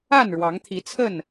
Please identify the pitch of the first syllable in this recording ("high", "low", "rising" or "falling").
falling